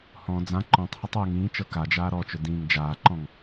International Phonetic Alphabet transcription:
h ɔ̃ d͡z ã ǃ ɔ̃ tˤ h ʌ tˤ w ʊ ŋ ĩː t͡ʃ ɤ k a d͡ʒ aː ɾ ɔ t͡ʃ ʊ d ĩː ŋ d͡ʒ aː ǃ ɔ̃ ŋ

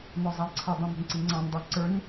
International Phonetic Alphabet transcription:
n ɔ zˤ ɑ j ǀʰ ʌ dˤ ɑ̃ m ə̤ n ǀ i ŋ͡ǀ ɑ̃ n dˤ ʌ ǀ ə˞ n

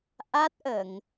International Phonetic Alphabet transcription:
ʔ a˦˥ t̚ ʔ ə˨˩˨ ŋ

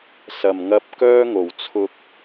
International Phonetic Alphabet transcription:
s ɐ˨˩ m ŋ ɐ˧ p̚ k œː˥ ŋ o˨˩ w t͡sʰ ʊ˧ k̚

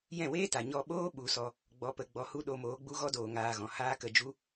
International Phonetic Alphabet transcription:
j ɛ̃˦˨ w eː˦ t a˨ ɲ ɔ˧ ɓ oː˦ ɓ u˨˦ s ɔ˧ | ɡ͡b ɔ˦ p ə˦ ɡ͡b ɔ˧ h u˦ ɗ o˧ m oː˨˦ ɡ͡b u˦ ɣ ɔ˦ d oː˨ ŋ aː˧ ɣ ɔ̃˨ h aː˦ k ə˧ d͡ʒ u˦

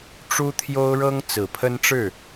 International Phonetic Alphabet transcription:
ʈ͡ʂ u˥ t̪ʰ j o˥ ʊ̯ ɻ ɤ˥ ŋ t͡s ɹ̩˨˩ pʰ ə˥ n ʈ͡ʂ ɻ̩˥˩

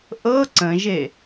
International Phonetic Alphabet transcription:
ʔ ɤ ǀ ə̃ ʒ e

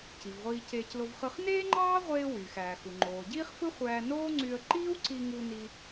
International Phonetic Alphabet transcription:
c i˩ v ʁʷ iː˧ c eː˧ c l o˧ v χ ɯ˧ χ n eː˥ ŋ͡ǃ ɑː˥ ʁʷ eː˧ w yː˩ x æː˩ x u˩ ŋ͡ǃ oː˩ ɟ iː˥ χ f ɯ˥ χʷ æː˧ n oː˥ ŋ͡ǀ y˧ ə̯ ǃ iː˥ w ǀ i˧ ŋ u˧ n i˧

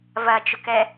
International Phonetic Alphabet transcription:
v ɐ t͡ʃ ʊ k ɛ

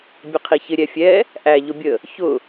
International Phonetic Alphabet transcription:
bʲ ə qʰ i ç ɪ ɾʲ ɛ fʲ ɛ | ʔ æ ʎ ʊ bʲ ə | ç ʊ

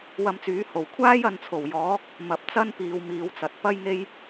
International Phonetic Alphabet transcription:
w ɐ˧ m t͡s yː˨˥ h o˨˩ w kʷʰ aː˥ j ɐ˨ n t͡sʰ o˨˩ w j ɔː˨˥ k̚ | m ɐ˨ p̚ t͡s ɐ˥ n p iː˨ w m iː˨˧ w t͡s ɐ˨ t̚ p ɐ˥ j ŋ e˥ j

